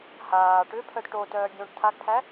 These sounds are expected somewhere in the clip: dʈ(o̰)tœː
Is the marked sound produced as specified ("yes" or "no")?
no